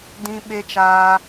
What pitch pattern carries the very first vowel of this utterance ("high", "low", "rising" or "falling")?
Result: high